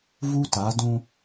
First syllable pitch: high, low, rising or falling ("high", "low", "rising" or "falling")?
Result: high